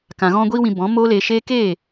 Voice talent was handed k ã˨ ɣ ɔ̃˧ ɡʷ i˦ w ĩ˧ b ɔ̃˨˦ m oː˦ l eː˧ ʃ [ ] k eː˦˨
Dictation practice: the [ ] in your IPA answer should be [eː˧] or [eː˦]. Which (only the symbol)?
eː˦